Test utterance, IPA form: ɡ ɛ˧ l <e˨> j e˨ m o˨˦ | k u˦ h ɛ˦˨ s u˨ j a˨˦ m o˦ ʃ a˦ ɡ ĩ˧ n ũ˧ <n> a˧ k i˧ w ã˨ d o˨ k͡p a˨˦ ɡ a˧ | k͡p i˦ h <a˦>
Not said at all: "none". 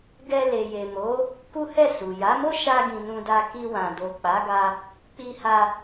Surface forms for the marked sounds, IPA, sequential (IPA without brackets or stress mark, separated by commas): e˨, d, a˦